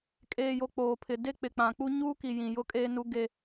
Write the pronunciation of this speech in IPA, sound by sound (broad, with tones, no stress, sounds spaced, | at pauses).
kʼ eː˨ j o˨ k͡p oː˨ pʰ ɪ˨ d e˦ k͡p ɪ˨ k͡p ã˨ k͡p u˦ ɲ uː˦ k i˨ j ĩ˨ j ʊ˦ kʼ eː˦ n u˦ ɡ e˦